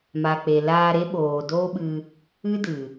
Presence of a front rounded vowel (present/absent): absent